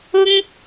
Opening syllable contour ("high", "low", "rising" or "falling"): high